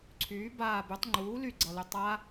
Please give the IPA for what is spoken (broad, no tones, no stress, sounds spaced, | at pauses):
ǀʰ yː b aː b y tˤ ŋ͡ǃ uː l y ɡ͡ǀ ʌ l y tˤ a